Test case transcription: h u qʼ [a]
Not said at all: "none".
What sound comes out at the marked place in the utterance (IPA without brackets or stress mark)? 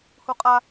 a